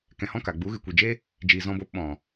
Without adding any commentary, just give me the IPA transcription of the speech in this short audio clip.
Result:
k ɛ̃˧ h ɔ̃˦ k a˨ ɡ͡b u˨˦ ɣ ɨ˨ kʷ i˨ d͡ʒ e˦ | d͡ʒ iː˧ z ɔ̃˦ b oː˦ p ɓ ɔ̃˨

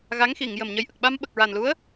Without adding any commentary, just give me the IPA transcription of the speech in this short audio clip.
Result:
ɣ a˧˥ ŋ x i˨˩˨ ŋ j ə˨˩ m ɲ ə˧ j ʔ ə˨˩ k̚ ɓ a˧ m ɓ ə˨˩ k̚ ɹ a˨˩ n l u˧˥ ə̯

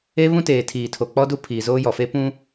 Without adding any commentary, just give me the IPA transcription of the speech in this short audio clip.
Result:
e˦ β ũ˦ t eː˨ tʰ iː˨ tʰ o˨ k͡p ɔ˦ d u˦ pʰ iː˨ z oː˦ j ɔ˨ f e˦ p ũ˦

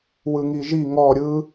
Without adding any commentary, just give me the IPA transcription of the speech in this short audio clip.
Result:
w ɯ ŋ i ʒ i ŋ ɔ ɾʲ ɯ

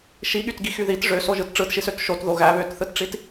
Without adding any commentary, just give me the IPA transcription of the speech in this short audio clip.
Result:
ʃ i ɠ y t ɡ i x y ð i t ʐ ø s o ʒ ɯ t ʈ͡ʂ ɯ t ʃ i s ø t ʃ o t ð o ɣ æ β ø t θ ɯ t ʈ͡ʂ i t

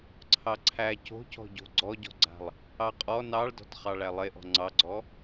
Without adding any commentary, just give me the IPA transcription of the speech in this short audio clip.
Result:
ǀʰ ɑ ǀʰ æ c o̤ c ɔ̤ ɟ o̤ ɡ͡ǀ ɔ ɟ ɔ̤ ɡ͡ǀ a̤ lˠ | ɑ qʼ ɔ n ɑ ɭ d ɔ̤ t χ ɑ ɭ æ lˠ e ʔ ɔ̤ ŋ͡ǀ ɑ ɡ͡ǀ ɔ

